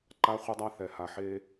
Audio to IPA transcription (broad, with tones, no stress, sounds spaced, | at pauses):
ǃ a˦ χʷ e˦ dˤ a˦ θ ɛ˨ h a˨ ħ e˦